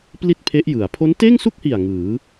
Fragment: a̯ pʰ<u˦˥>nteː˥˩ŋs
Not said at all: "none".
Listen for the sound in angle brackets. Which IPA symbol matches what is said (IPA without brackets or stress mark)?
o˦˥